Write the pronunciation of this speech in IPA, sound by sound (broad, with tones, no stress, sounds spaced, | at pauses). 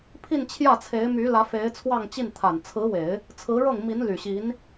pʰ i˥˧ n t͡ɕʰ j ä˥˩ t͡sʰ e˧˥ ɪ̯ m y˧˥ l ä˧˥ f e˧˥ ɪ̯ t͡sʰ w ɑ˥˧ ŋ t͡ɕ i˥˩ n t̪ʰ a˨˩ n t͡sʰ ɹ̩˧˥ w e˨˩˦ ɪ̯ | t͡sʰ ɹ̩˧˥ ɻ ɤ˥˩ ŋ m i˧˥ n l y˨˩ ɕ i˧˥ n